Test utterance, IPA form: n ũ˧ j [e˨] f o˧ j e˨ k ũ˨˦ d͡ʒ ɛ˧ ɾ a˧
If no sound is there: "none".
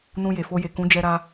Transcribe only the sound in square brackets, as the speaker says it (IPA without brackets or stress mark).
e˨